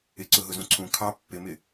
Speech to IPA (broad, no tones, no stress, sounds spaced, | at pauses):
ɪ ǀ ʊ ɦ ʊ z ũ ǀʰ ũ kʰ ɑ pː ɪ m ɪ